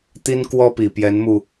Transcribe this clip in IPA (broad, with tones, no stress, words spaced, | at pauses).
t̪i˥nkwɔ˥pi˨˩ pjɛ˧˥nmu˧